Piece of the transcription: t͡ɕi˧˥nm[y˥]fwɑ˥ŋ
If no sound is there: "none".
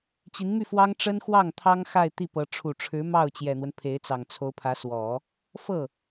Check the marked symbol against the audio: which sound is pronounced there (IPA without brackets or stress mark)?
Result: y˥˩